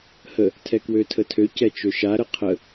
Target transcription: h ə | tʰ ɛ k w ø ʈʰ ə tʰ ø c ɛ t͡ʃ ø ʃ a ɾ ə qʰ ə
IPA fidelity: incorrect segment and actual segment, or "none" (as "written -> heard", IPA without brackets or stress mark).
ʈʰ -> tʰ